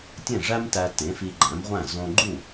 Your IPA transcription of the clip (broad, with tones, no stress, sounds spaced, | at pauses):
tʲ ẽ˥˩ ʐ æ˥ m t æ˧ t ẽ˩˥ f i˧ ɡ͡ǃ æ̃˩˥ m ʁʷ æ̃˥˩ z õ˧ ɡ͡ǃ u˥˩